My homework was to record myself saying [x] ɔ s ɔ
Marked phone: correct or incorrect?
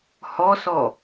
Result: incorrect